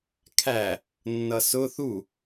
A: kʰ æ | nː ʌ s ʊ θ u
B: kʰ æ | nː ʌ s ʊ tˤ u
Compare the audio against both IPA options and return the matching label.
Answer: A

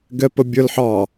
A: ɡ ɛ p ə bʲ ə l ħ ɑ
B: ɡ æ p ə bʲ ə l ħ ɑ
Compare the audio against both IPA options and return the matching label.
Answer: A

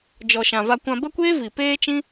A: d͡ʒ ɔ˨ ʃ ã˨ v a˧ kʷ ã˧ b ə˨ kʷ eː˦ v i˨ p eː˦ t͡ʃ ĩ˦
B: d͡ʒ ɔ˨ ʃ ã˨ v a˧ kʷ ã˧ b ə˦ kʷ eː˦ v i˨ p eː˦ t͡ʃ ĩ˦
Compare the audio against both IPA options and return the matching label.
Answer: B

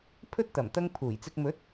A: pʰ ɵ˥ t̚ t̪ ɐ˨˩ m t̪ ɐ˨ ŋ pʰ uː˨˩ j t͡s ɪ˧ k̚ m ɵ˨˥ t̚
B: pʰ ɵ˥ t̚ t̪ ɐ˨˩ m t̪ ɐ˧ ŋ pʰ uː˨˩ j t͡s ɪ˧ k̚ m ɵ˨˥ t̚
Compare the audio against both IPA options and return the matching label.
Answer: B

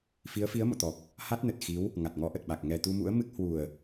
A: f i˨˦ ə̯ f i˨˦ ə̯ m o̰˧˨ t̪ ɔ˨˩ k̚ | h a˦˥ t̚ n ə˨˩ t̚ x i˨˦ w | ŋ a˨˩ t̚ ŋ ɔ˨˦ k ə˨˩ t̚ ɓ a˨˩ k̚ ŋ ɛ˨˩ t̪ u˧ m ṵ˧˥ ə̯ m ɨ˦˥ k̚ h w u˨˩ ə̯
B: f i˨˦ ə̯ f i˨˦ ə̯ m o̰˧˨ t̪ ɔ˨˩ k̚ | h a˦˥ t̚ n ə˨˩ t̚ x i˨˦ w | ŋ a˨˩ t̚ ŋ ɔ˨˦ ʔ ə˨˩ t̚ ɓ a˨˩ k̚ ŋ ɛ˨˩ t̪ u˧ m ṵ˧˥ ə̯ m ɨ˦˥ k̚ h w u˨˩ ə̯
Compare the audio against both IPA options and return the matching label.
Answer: B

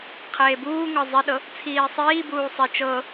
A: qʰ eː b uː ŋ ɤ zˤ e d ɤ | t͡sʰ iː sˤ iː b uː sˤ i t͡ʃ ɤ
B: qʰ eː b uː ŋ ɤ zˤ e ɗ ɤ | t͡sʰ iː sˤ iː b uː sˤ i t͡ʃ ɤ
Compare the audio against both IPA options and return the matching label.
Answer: B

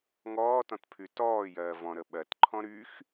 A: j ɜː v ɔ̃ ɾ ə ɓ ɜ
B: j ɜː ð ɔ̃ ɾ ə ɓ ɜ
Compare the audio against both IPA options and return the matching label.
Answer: A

